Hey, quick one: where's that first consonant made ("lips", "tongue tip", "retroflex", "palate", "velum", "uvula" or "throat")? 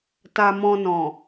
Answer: tongue tip